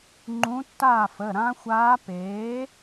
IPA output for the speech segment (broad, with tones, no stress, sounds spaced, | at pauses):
ŋ͡ǃ ũ˧˥ tː aː˥˨ f ə˩˧˩ ɾ ã˧˥ xʷ aː˧˥ p eː˩˥